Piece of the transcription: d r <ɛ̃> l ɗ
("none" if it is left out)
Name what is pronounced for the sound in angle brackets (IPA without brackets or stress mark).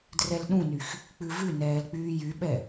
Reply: ɛ